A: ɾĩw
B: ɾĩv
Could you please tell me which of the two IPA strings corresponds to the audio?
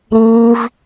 B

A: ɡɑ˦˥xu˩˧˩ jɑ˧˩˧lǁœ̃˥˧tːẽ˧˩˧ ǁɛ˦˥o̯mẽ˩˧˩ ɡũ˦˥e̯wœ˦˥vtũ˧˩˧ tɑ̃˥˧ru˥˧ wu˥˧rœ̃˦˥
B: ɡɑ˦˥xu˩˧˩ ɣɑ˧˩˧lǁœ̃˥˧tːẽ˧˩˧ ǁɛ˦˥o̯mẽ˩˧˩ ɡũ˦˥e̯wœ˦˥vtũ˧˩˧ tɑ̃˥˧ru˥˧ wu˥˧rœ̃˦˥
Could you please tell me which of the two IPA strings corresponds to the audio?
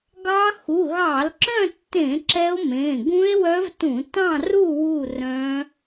B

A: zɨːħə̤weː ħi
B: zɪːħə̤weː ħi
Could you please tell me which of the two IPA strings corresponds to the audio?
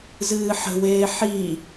A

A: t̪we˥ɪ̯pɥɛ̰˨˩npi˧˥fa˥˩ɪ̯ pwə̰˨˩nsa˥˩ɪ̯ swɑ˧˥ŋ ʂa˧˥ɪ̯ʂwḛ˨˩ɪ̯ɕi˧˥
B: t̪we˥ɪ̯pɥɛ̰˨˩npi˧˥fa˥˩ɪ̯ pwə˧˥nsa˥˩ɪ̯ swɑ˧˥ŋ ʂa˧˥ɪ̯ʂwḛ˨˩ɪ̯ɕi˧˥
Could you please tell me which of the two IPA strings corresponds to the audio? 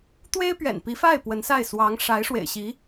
B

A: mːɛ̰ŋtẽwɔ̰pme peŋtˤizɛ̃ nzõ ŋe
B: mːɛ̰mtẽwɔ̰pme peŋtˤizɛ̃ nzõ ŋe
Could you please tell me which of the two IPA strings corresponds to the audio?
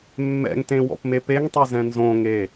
A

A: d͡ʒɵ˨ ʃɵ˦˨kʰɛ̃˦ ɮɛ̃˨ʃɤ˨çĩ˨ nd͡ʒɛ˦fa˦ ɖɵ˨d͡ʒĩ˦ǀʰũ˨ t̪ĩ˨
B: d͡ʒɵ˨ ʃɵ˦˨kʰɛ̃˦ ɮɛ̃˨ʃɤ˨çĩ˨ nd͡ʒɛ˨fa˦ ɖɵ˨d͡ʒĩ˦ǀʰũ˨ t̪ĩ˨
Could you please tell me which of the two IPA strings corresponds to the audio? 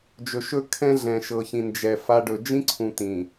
B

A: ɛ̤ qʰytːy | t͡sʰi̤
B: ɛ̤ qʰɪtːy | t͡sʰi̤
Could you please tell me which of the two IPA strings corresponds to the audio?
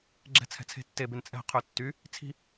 A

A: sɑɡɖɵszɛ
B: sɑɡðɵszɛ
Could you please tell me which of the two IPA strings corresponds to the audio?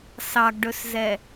A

